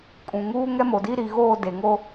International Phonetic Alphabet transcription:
kʼ ũ˨ ŋ uː˦ ŋ ɛ˦ m o˨ d i˦ ɾ i˨ ɣ oː˦˨ d e˨ ŋ o˦

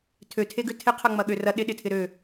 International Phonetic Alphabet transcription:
tʰ ø tʰ e ɡ ʏ tʰ ɪ qʰ ɐ ŋ͡m ɐ ɠ ø r ɐ ɗ ɪ ɗ ɪ tʰ ɪ ɾ ø

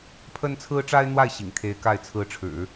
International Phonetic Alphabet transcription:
pʰ ə˥ n t͡sʰ ɹ̩˥ ʈ͡ʂ a˥ ɪ̯ n̪ w a˥˩ ɪ̯ ɕ ḭ˨˩ ŋ t̪ʰ e˧˥ ɪ̯ k a˥˩ ɪ̯ t͡sʰ ɹ̩˧˥ ʈ͡ʂʰ ɻ̩˨˩˦

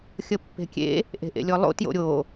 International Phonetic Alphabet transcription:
xʲ ə pː e̤ kʲ ḛ | ʔ e̤ ʔ ḛ lʲ ɔ lˠ o̰ t j o̰ ɾʲ o

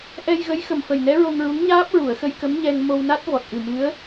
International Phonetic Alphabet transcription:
ʔ ɛ˧ j ɣ ə˧˥ j x ə˨˩ m f ə˨˩ j n ɛ˧˥ ɹ o˧ ŋ ɹ u˧˥ ŋ ɲ aː˦˥ p̚ ɹ u˨˩˨ ə̯ x ə˧ j k ə˧˥ m ɲ ɛ˧ ŋ m o˧ w n a˦˥ t̚ v ɔ˨˩ t̚ ʔ ɨ˨˩ m ɨ˧˥ ə̯

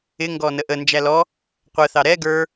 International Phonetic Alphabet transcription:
ɪ ŋ ɡ ɔ n ə ʔ ə n d͡ʒ æ l ɔ | qʷ ə θ ɑ ɾ ɛ ɡ ə˞

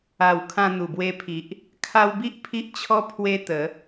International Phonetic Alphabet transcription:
a˨˩ w kʰ ã˧ n̪ u˨˩ b w e˧ pʰ i˨ ʔ | kʰ a˧ w b i˦ ʔ pʰ i˦ ʔ t͡ɕʰ ɔ˦ pʰ w e˦ t̪ ə˨˦

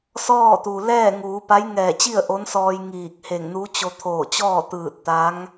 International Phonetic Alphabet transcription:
s ɔː˥˨ t̪ u˩ l ɛː˥˨ ŋ uː˩˧ p a˧˥ j ŋ ɛː˧˩ t͡ɕ i˥˨ ə̯ ʔ o˧˥ n s ɔː˧ j ŋ iː˧˩ k̚ h e˧˩ ŋ n u˧˥ t͡ɕ o˧ t̪ʰ oː˧˩ t͡ɕ ɔː˥˨ t̪ ɯː˧˩ t̚ t̪ a˧˥ ŋ

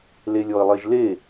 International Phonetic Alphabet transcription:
l e lʲ ɔ ə̯ lˠ e ʒ l e

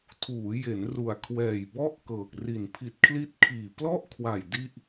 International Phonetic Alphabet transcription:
tʰ uː˩˦ j e˩˦ n r u˨˩ a̯ kʰ w ɛː˨˩ j b ɔ˥˩ ʔ k ɤː˨˩ k̚ r i˨˩ n pʰ i˨˩ t̚ kʰ l i˦˥ t̚ kʰ iː˨˩ p l ɔ˥˩ ʔ kʰ w a˨˩ j d i˥˩ ʔ

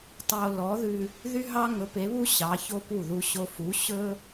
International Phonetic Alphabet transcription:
tˤ o˧ l ɔ˩˥ ð ʉ˧ | ð y˥ ɦ ɑ˥ ŋ ɵ˩˥ p e˩˥ β u˥ ɕ ɑ˩˥ ç o˥ p u˥˩ ð u˧ ɕ o˧ f u˩˥ ɕ ɵ˥

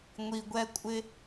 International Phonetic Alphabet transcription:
ŋʷ i˨ ɡʷ ɛ˧ kʷʼ ɪ˧

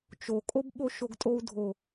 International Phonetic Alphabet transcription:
t͡ʃ o kʼ o b ɓ o ʃ o ɡ tʼ o u̯ dʱ o

